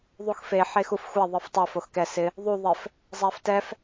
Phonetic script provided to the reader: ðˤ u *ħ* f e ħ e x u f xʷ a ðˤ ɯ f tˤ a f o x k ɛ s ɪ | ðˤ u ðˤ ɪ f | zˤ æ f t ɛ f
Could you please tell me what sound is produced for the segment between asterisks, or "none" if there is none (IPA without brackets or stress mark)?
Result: x